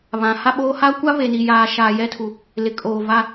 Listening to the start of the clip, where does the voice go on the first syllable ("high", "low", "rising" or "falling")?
rising